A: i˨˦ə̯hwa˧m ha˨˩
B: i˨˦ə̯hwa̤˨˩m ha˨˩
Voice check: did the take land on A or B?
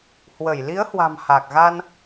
B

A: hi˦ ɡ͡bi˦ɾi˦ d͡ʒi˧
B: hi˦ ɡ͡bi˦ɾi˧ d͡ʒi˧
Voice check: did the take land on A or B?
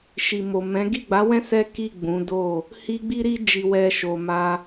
A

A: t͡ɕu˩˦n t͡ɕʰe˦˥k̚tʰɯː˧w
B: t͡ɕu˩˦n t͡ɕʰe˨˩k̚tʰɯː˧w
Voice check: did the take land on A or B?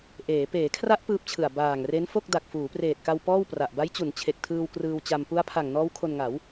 B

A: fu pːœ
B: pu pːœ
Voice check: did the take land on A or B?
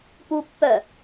B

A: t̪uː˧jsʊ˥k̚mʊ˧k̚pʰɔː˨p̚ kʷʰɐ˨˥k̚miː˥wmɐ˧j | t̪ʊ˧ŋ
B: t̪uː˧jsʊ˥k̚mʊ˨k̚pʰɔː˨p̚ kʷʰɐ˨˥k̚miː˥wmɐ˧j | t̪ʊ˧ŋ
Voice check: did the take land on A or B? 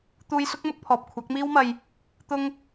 A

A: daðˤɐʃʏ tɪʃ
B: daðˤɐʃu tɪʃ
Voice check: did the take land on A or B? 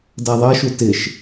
B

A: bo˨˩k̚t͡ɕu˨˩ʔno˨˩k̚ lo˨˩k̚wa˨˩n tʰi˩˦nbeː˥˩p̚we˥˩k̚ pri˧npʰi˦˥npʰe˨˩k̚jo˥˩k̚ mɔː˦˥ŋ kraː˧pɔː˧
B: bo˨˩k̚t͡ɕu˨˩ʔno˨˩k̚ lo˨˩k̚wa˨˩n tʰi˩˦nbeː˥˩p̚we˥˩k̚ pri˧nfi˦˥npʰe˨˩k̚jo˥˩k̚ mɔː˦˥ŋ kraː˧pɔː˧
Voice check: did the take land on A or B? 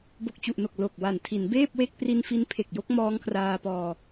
B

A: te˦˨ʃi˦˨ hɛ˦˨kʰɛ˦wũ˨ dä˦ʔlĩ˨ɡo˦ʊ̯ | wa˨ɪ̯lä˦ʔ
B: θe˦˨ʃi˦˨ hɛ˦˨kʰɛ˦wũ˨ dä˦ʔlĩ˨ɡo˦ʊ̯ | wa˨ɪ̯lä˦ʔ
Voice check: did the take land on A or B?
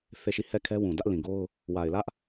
B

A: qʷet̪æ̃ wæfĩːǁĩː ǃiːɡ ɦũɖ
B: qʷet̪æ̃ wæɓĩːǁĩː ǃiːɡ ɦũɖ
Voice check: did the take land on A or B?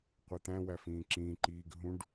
A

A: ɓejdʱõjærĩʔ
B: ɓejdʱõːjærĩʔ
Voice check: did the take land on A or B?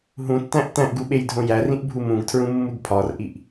A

